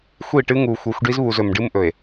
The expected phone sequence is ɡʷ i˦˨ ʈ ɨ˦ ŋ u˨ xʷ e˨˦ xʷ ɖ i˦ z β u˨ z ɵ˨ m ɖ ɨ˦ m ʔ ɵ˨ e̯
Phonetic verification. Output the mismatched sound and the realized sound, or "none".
ɡʷ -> xʷ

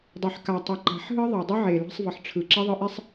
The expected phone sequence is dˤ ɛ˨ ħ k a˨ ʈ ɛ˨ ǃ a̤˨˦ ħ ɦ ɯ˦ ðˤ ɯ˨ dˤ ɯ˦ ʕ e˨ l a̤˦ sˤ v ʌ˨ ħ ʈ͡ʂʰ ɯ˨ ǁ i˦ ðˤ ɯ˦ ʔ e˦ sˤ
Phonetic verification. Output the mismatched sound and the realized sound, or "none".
ʈ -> tˤ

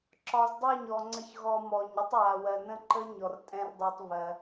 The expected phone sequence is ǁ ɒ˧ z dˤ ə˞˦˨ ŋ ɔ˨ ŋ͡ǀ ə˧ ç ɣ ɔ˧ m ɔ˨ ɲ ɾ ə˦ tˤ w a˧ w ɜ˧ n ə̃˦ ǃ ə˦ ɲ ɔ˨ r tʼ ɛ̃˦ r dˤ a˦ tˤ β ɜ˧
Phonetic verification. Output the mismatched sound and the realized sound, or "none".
ŋ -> ɲ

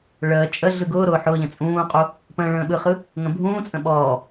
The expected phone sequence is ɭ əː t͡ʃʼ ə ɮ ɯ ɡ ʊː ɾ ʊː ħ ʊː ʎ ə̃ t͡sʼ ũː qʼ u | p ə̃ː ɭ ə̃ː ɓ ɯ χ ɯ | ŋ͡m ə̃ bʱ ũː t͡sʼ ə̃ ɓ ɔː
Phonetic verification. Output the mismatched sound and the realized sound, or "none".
ŋ͡m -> ŋ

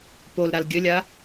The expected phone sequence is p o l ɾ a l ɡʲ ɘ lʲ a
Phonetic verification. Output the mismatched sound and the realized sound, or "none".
none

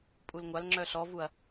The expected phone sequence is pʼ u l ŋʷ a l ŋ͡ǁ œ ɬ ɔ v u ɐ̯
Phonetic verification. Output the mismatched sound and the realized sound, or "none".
none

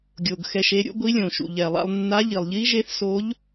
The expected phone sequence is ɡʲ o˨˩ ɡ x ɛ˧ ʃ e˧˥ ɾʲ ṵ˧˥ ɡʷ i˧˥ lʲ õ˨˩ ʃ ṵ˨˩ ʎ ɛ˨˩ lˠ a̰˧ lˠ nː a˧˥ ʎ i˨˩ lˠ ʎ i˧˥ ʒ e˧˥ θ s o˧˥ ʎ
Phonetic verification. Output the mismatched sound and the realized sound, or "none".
none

